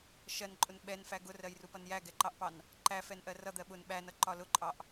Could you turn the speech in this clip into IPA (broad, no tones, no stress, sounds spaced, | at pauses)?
ʃ ɜ n ǃʼ ʊ n ɓ ɛ n f æ ɡ ʊ r ɜ j r u p ʌ n j æ ɡ ɛ ǃ ɑ ʔ p ɑ n | ǃ æ f ɛ n ʔ ɜ r ʌ d̪ ɜ ɓ ʊ n ɓ æ n ʌ ǃ ɒ l ʊ ǃʼ ɑ ʔ